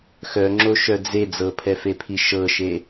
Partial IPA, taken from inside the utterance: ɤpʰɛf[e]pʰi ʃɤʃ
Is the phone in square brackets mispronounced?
no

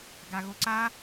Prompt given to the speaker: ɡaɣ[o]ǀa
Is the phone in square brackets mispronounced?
no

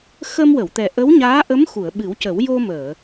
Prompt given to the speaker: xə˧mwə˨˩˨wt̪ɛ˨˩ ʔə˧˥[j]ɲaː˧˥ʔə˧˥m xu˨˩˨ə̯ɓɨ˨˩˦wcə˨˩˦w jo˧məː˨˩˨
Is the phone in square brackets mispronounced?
yes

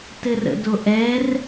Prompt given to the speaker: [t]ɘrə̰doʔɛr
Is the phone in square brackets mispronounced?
no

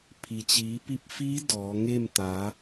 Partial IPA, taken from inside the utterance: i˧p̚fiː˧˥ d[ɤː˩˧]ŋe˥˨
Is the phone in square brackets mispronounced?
yes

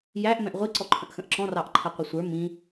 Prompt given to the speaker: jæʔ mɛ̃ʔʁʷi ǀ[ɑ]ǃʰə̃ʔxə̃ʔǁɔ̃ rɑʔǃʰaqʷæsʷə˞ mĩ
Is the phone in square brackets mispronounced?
yes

